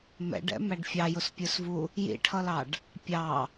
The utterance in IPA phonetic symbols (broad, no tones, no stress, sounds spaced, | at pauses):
m ɛ̰ ɖ ɛ̰ m æ ɖ fʲ ɑ j ʊ s pʲ ə˞ s v u | j ḭ ʈʰ ʌ l ɑ ɖ | pʲ ɑ